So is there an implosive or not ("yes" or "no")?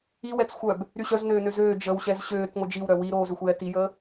no